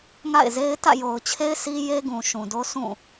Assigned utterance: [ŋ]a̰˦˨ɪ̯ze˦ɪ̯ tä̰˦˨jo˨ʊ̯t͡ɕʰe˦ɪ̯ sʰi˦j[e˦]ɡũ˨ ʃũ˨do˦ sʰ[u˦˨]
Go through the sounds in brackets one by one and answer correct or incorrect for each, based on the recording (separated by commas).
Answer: correct, correct, incorrect